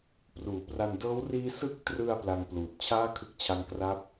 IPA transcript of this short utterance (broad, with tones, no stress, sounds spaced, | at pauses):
p r uː˩˦ p r a˧ n d ɤː˦˥ w r iː˦˥ s ɯ˥˩ k̚ t r ɯ˧ a̯ p l a˧ ŋ p l uː˨˩ t̚ t͡ɕʰ aː˥˩ kʰ ɯ˦˥ k̚ t͡ɕʰ a˦˥ ŋ k r a˥˩ p̚